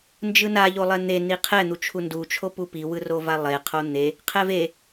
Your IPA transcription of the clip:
n d͡ʒ ɯ n a ʎ o lˠ ɛ n̪ e n i qʰ ɛ n̪ u t͡ʃʰ u n d u t͡ʃʰ o p u p i w ɯ r o v a lˠ e qʰ o n̪ e | qʰ ɛ v e

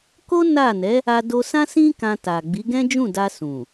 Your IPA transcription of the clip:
k o˦ n a˦˨ n ɛ˨˦ | a˧ d o˧ s ã˦ s ĩ˦ k ã˧ t a˨ ɡ͡b i˨˦ ɡ ɛ̃˦ d͡ʒ ũ˦˨ d a˧ s ũ˨

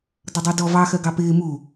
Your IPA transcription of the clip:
d ʌ dˤ ɛ d ɔ v ɑ x ɜ ɡ ɑ p ɪː m u

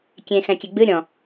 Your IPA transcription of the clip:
kʲ ẽ x ɛ̃ kʲ e ɡ͡b ɨ ɾʲ ɔ̃

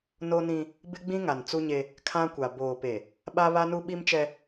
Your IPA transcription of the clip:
n o˦ n ĩ˦ | b ɪ˦ ɡ͡b ĩ˦ ŋ a˨ n t͡s u˦ ɲ e˦ | kʰ ã˦ kʷ a˨ b oː˨ p e˨ | ɓ a˦ β a˦ n u˦ ɓ i˦ m t͡ʃ ɛ˦

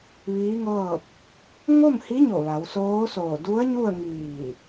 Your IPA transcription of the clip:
ʋ iː˧˥ ŋ ɤː˥˨ p̚ | ŋ o˥˨ m h i˧˥ ɲ o˧˩ ʋ a˩˧ w s oː˧˥ s oː˧˩ d u˧˥ ə̯ ɲ u˥˨ ə̯ ŋ iː˧˩

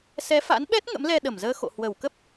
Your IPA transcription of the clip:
s ɛ˨˦ f a̰˧˥ n ɓ ɛ˦˥ t̚ ŋ ə̰˧˥ m l ɛ˧ ɗ ə˧˩ m z əː˧ x o̰˧˨ h w ə˧˩ w k ə˦˥ p̚

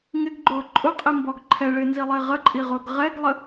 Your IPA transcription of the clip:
ŋ ɪ ɡ ɡ͡ǃ ʊː ǃʼ ʊ qʼ i m b ɔ ɡ ǃʰ ɛ ɭ ɪː n z i lˠ ɪː ʁ ə ǃʼ i ʁ ʊː ɡ ʁ ɛ ɡ lˠ ə

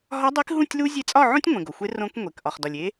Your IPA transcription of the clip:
ɦ ɒ˧˥ dˤ i˧˥ k ɦ ũ˥˨ tʲ l u˥ zʲ e˧˥ t͡sʼ ɒ˥˨ ʕ õ˥ tʲ ŋʷ ẽ˩ ɡ o˩ xʷ e˧˥ r õ˧˥ k ŋʷ e˩ k ʔ ɒ˩ χ d ɒ˩ lʲ e˧˥

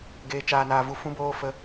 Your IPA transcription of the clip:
ɡ eː˨ t͡ʃ aː˨ n aː˨ v u˨ f ũ˧ b oː˧ f ə˧

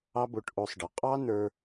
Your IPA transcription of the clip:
ɑ˦ b o˧ ʈ ʔ o˧ sˤ ɖ ɤ˨ qʼ ɑ˦ n ə˞˧

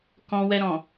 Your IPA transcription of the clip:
k ɔ̃˧ w ɛ˧ ɾ ɔ̃˨

